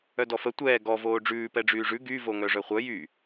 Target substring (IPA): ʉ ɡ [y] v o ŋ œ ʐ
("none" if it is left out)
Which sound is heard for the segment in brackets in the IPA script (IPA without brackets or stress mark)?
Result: y